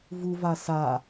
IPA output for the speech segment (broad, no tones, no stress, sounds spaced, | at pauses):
v u v a s a